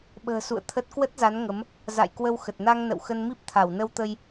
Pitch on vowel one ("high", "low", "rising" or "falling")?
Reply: low